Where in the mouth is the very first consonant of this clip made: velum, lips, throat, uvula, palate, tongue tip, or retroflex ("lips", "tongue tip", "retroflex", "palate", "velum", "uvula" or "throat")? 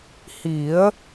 throat